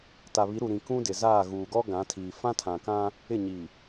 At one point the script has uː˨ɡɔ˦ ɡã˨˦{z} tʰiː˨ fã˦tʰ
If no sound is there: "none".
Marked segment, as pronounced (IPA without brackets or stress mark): none